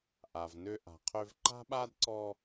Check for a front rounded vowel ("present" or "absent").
present